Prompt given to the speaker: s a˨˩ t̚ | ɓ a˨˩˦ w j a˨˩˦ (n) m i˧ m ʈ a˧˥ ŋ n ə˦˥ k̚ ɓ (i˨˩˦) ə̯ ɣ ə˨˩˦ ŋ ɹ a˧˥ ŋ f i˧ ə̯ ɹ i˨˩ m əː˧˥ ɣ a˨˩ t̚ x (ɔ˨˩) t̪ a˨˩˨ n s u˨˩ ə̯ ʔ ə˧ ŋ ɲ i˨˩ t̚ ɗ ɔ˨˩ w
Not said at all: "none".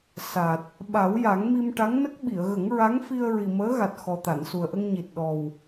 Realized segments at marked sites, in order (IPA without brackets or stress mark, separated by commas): ŋ, i˨˩˨, ɔ˨˩